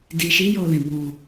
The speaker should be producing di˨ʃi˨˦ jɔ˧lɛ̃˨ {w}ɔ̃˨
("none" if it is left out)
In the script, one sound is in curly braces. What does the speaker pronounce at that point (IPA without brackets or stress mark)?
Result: b